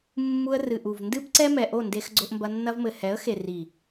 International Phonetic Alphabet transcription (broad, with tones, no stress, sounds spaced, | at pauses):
mː u˧ ə̯ r ɨ˨ ʔ u˨ v n d ɨ˦ b ǀ ɛ˦ m ɛ˨ ʔ o˦˨ n d e˧ x ɡ͡ǀ o˧ ʔ m b ɐ˧ nː ɐ˧ v m ɘ˨ h ɛ˨˦ ə̯ x e˨ r i˨